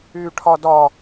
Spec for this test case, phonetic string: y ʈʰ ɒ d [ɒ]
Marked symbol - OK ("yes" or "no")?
yes